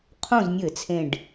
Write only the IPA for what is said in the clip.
qʰ õ˥˨ z nʲ ɘ˧˩˧ t͡sʰ ẽ˧˩ ɖ

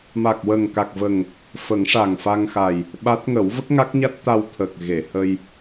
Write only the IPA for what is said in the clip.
m a˨˩ k̚ w ə˨˩ ŋ k a˨˩ k̚ v ə˨˩ ŋ | f ə˨˩˦ ŋ ʂ a˨˩ ŋ f a˧ ŋ x a˨˩ j | ɓ a˦˥ t̚ ŋ ə˨˩˦ w v ə˦˥ k̚ ŋ a˦˥ k̚ ɲ a˦˥ t̚ t̪ a˧ w t̪ʰ ə˨˩ k̚ ɣ e˨˩˨ h ə˧ j

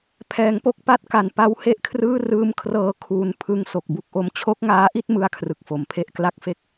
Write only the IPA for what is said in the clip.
pʰ ɛː˩˦ ŋ p o˦˥ k̚ p a˥˩ t̚ k a˨˩ n p a˦˥ w h e˥˩ ʔ kʰ r ɯː˥˩ r ɯː˦˥ m kʰ r ɤː˧ kʰ uː˧ n pʰ ɯ˦˥ ŋ s o˨˩ k̚ b u˦˥ k̚ ʔ o˦˥ m t͡ɕʰ o˦˥ k̚ ŋ aː˦˥ ʔ i˥˩ t̚ m ɯ˥˩ a̯ kʰ r ɯ˨˩ k̚ f o˩˦ m pʰ e˥˩ ʔ k l a˥˩ k̚ f e˥˩ k̚

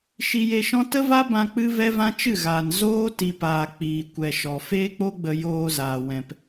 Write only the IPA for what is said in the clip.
ʃ i˧ j e˧ ʃ ɔ̃˦ t ə˦ v a˦ b ã˧ k͡p ɨ˦ v ɛ˦ v ã˦ t͡ʃ ɨ˦˨ ɣ aː˨ n z oː˦ t i˨ p aː˨ k͡p iː˨ kʷ ɛ˨ ʃ ɔ˨ f eː˦ k͡p o˦ ɡ͡b ə˧ j oː˧ z aː˨ w ɛ̃˨ p

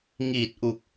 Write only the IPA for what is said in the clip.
ŋ iː˨˩ t̚ ʔ u˨˩ k̚

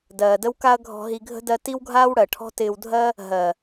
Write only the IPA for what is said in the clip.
d ɜː˨ d ə˦ w k a˦ ɐ̯ ɡʱ ɔ̤˧ ɦ i˧ ɡʱ ə̤˦ d ɜ˦ t i˦ w ɡʱ aː˦ w ɽ ɜ˨ ʈʰ ɔ̤˦ t ɪː˧ w dʱ ɜ˦ | ɦ ɜ˨

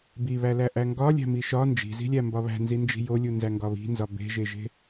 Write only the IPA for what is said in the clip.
b i β æ l æ ʔ æ ŋ ɡ ɒ lʲ æ̤ m i ʃ ɒ n d͡ʒ i̤ z i̤ lʲ æ m b ɒ β æ̤ n z i n d͡ʒ i̤ j o lʲ u n z æ ŋ ɡ ɒ β i̤ n z ɒ b e̤ ʒ e ʒ e̤

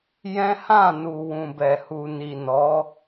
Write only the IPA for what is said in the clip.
j ɛ̃˦ h ã˦˨ n u˨ w ũ˨ b ɛ˨ h u˨ n i˨ n ɔ˨˦

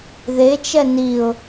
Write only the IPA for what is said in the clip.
ð e t͡ʃ ɛ n i ʊ̯

